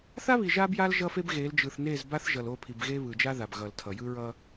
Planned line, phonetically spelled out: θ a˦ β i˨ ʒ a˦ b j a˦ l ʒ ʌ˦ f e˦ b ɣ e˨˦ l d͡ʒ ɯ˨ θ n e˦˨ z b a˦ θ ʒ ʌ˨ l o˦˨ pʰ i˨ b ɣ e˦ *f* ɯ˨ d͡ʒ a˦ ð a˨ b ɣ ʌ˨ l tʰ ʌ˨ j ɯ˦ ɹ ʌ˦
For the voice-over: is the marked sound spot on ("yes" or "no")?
no